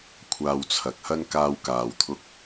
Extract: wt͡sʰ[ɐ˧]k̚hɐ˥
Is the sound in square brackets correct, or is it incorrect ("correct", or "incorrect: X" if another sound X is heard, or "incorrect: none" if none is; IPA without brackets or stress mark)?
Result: incorrect: ɐ˨˥